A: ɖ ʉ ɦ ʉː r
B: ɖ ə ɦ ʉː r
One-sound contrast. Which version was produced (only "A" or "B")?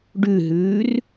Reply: A